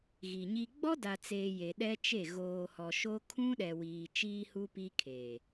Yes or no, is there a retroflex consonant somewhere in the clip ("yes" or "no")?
no